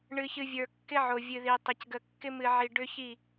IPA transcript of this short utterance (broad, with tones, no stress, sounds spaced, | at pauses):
ɳ ɨ˨ ç ɨ˨ vʲ ə˞˨ kː ɪ˦ ʕ o˨ vʲ ɨ˨ ð i˨ tˤ ə˞˨ c ɡ ə˨ kː ɪ˦ m ɨ˨ ʕ i˨ ɖ ʏ˦ ç i˦˨